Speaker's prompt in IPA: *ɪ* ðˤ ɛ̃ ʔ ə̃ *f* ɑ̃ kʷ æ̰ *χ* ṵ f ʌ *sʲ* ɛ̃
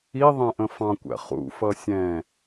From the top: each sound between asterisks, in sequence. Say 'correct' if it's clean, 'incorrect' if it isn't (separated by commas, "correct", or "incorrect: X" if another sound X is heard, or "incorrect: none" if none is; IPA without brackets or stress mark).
incorrect: i, correct, correct, correct